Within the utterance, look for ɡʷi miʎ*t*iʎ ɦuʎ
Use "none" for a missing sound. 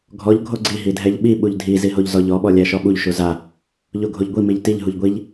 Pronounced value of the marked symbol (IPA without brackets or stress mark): t